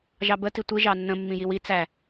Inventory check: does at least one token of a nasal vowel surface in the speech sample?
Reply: yes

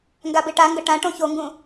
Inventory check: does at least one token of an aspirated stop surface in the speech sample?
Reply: no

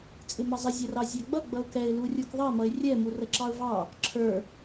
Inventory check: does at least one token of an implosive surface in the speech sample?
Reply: no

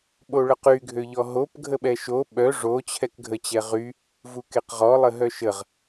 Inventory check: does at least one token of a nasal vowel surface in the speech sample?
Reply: no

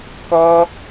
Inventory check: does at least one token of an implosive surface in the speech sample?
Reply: no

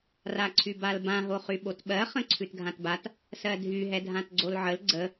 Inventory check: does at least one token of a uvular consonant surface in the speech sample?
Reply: yes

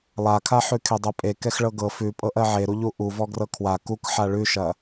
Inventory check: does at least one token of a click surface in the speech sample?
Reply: no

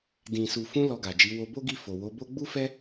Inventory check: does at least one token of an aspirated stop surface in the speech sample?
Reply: no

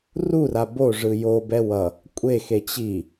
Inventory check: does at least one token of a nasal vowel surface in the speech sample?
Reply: no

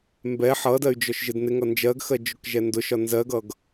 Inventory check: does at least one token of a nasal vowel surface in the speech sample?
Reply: no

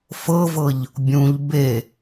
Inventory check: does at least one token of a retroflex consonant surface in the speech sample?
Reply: no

